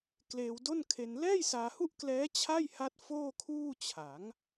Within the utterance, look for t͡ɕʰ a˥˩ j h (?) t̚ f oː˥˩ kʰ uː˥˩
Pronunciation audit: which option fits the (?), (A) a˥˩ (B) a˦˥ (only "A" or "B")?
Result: B